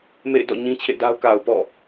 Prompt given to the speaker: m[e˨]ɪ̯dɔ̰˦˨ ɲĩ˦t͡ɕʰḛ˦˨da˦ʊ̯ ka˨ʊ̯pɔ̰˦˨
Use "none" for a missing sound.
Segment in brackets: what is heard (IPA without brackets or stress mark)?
ḛ˦˨